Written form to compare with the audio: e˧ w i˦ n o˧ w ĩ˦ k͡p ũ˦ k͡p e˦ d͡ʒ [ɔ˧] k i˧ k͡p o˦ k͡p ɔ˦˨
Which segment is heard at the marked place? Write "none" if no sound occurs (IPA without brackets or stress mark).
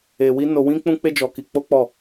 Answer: ɔ˧